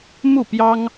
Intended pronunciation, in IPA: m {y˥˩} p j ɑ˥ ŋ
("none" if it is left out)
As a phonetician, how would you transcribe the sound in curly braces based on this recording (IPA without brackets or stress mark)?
u˥˩